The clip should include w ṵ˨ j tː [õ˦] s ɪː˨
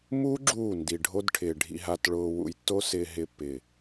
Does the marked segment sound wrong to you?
yes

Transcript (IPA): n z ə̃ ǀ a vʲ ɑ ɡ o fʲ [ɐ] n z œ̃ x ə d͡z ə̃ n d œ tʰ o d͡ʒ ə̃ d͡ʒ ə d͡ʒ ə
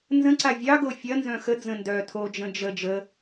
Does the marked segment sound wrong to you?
no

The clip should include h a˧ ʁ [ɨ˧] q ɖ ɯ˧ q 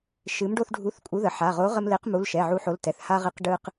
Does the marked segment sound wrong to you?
yes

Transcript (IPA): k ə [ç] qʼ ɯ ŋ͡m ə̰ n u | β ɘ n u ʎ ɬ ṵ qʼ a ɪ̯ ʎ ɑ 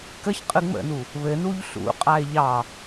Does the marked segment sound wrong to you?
no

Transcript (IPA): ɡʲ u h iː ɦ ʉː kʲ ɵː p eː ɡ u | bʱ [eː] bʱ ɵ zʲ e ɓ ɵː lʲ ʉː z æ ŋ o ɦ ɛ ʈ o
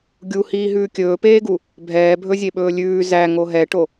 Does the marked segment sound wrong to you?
yes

